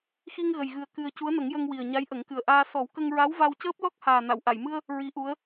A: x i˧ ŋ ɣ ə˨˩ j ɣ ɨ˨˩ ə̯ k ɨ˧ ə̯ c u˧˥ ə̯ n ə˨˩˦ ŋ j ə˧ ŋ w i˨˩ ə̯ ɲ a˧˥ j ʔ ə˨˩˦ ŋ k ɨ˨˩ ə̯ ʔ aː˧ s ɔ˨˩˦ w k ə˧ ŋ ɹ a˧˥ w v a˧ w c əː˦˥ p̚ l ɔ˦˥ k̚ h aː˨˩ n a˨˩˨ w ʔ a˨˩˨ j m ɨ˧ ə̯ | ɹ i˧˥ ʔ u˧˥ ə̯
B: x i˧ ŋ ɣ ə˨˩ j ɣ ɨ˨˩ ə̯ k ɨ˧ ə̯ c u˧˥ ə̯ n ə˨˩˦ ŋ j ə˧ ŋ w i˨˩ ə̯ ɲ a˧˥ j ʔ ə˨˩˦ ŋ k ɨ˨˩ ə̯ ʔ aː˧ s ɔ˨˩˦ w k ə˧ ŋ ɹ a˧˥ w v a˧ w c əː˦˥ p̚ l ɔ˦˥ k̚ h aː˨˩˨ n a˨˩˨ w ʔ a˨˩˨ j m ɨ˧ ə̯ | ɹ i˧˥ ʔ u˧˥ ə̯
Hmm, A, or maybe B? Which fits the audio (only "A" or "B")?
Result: A